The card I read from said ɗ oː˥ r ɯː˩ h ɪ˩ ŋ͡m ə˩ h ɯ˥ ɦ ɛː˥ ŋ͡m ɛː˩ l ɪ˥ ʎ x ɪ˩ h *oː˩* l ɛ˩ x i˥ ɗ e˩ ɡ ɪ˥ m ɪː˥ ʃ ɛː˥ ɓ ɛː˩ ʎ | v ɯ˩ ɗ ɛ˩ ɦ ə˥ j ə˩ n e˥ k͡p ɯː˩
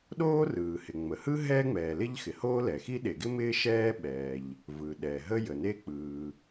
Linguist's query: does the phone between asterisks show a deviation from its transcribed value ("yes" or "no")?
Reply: yes